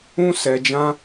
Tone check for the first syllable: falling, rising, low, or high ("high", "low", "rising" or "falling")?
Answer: high